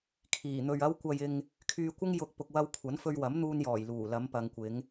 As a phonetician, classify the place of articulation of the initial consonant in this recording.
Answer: velar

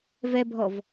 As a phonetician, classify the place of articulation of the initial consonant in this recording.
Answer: labial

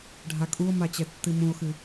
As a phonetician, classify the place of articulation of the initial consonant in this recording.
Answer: retroflex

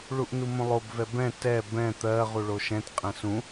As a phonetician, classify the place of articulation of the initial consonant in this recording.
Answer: retroflex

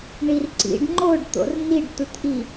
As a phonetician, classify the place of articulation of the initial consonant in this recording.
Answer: retroflex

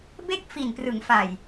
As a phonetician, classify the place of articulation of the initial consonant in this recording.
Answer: labial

